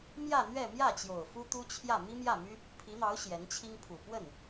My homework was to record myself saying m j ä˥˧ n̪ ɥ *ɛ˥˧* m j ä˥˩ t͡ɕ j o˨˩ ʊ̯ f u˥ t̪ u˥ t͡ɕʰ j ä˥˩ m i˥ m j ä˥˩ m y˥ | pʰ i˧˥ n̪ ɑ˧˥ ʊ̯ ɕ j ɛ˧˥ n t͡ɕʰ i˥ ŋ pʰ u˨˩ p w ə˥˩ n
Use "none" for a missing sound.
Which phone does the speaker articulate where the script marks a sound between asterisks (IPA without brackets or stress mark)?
ɛ˥˧